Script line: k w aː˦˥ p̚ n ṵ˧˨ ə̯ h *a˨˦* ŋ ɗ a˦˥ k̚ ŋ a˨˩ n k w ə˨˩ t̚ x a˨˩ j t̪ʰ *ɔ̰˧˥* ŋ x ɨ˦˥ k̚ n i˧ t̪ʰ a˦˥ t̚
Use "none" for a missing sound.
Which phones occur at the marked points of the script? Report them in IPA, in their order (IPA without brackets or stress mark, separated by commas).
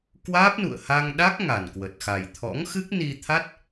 a˧, ɔ̰˧˥